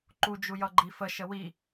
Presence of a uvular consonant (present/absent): absent